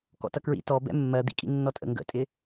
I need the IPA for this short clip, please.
kɔ̰tʌkɹḭ tɔ bɛ̰mːɜ d̪ḭkʼḭnːɔtʼə̰ ŋɡə̰tʼɪ

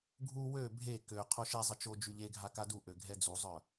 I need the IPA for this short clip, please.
ɡʱu wø bʱe kø qʰoʃezˤə t͡ʃo d͡ʒyʎeɡʱa kaduʔø ɡʱɛd͡zuzˤœ

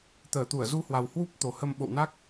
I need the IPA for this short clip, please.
t̪əː˧˩t̪u˧˩ə̯ zu˧hwa˨˩w hwu˦˥p̚t̪o˨˩hə˧m ɓo̰˧˨wna˦˥k̚

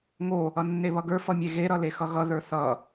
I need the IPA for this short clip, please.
ŋo | ʌnːeβʌɡə˞ fʌmʲeɣe ɾʌlexʌɣʌ ðə˞θʌ

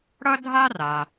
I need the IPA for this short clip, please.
ɽʌ˥dʱa˥ra˩

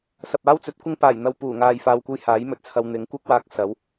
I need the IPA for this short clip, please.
sɐ˨p̚aː˥wt͡sɵ˨˥t̚kʷɪ˥ŋ paː˨˩jn̪ɐ˨w puː˨˩ŋaː˨jfaː˨w kʷɐ˥jhaː˨˥jmɵ˨t̚t͡sʰɐ˧w n̪ɪ˨˥ŋkʷɐ˥k̚waː˧k̚ sɐ˨˥w

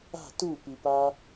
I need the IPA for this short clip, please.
a̤ tupipa

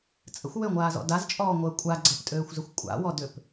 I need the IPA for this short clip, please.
t͡sʼə̰xʷ wøŋʷaːzɔ̰ dazt͡ʃʼɔːŋʷəː kʷʼa ɡ͡ǀəptʼøːxʷzəxʷ kʷʼa̰wɔdʏp

